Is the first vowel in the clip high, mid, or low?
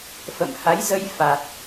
mid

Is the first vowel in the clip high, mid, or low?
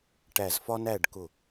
low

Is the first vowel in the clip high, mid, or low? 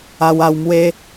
low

